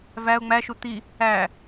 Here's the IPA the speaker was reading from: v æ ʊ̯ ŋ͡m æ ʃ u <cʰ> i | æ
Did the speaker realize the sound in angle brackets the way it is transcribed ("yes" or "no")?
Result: no